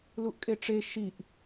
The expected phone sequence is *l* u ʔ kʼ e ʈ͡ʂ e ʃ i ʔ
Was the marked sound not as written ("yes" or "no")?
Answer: no